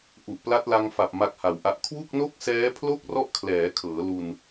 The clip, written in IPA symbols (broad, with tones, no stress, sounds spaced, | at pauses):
ʔ u˨˩ ʔ p l a˦˥ t̚ l a˧ ŋ f a˨˩ p̚ m a˦˥ k̚ h a˨˩ w ʔ a˦˥ ʔ kʰ w u˥˩ k̚ n o˥˩ k̚ s ɛː˦˥ pʰ l o˥˩ k̚ r ɔ˥˩ ʔ kʰ l ɛː˩˦ kʰ ɤː˩˦ l u˧ n